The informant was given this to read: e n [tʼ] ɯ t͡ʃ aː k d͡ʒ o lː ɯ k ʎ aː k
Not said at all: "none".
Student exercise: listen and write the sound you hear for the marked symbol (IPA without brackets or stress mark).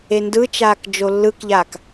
d